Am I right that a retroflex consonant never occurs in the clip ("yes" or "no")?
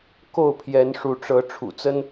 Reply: no